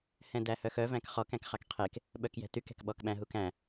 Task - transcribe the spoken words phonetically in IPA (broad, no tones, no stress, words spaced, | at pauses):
hɛ̃dæhœxœ væ̃kχɔk æ̃kχɑkqʰek | ɓœkjɛ̤tyk ɛ̤kɓɔkɓæ̃ ɦukæ̃